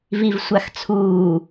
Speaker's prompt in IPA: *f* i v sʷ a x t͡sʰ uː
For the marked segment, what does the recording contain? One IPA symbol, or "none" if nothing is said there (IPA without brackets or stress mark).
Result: v